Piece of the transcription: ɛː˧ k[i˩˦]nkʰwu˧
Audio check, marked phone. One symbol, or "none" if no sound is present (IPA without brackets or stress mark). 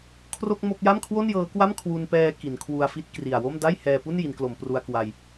i˩˦